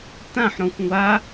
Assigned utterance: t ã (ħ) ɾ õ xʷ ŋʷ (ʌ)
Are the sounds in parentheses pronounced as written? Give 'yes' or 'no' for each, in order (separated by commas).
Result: yes, no